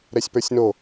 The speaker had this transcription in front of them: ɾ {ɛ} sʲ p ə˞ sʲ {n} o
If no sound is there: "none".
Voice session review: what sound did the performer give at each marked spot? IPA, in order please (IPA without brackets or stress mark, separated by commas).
ɛ, n